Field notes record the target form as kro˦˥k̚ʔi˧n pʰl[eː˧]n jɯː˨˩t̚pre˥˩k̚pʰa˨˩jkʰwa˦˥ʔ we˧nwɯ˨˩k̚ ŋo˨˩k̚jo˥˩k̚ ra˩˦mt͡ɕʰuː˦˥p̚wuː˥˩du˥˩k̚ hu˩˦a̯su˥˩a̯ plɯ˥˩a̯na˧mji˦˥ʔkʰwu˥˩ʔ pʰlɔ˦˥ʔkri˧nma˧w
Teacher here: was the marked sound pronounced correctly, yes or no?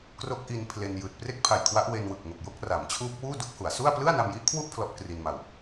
no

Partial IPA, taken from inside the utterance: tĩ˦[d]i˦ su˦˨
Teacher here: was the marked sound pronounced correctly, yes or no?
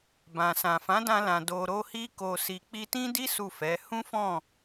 yes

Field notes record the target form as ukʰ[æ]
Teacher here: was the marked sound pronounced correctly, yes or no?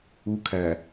yes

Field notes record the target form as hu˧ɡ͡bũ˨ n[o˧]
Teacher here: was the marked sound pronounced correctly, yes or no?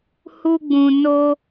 yes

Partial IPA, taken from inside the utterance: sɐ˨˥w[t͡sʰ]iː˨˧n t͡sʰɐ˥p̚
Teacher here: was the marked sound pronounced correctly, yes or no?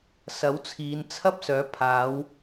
yes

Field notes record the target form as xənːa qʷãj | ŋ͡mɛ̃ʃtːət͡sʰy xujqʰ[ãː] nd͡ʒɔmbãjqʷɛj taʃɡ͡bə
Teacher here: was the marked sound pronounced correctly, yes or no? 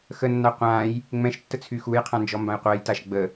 no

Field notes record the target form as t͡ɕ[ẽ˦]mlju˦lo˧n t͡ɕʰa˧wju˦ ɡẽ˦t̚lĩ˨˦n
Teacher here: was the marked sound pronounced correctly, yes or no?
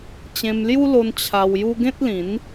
no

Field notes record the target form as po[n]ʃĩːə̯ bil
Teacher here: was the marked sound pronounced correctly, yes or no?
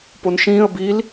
yes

